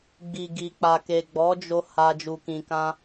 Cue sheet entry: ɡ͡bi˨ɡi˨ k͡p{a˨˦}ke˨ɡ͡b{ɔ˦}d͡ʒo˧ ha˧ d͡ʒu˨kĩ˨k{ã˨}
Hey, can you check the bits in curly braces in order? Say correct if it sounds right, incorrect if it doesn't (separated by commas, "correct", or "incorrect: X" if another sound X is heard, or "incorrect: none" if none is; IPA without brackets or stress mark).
incorrect: a˨, incorrect: ɔ˨˦, incorrect: ã˧